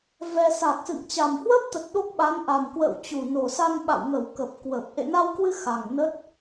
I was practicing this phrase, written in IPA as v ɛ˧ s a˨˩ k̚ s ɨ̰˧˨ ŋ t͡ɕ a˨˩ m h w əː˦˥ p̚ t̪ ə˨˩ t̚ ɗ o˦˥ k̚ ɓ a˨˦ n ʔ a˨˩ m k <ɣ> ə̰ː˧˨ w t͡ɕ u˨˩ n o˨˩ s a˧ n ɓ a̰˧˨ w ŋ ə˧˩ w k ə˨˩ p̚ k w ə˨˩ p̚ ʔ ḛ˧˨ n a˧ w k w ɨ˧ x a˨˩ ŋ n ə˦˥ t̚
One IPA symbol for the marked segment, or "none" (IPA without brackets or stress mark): w